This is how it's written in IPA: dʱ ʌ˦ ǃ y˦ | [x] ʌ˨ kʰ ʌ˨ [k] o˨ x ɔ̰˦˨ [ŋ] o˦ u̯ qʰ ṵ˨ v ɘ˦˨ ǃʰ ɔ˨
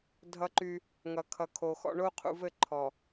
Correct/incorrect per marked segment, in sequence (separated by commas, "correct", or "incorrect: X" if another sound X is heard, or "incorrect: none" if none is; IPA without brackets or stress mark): incorrect: ŋ, incorrect: kʰ, incorrect: ɳ